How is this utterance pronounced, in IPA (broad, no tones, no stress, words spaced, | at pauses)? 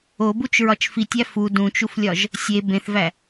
obut͡ʃɹɒt͡ʃ fitʲæ fu dũt͡ʃuflʲɒʒ | sʲe bẽθvæ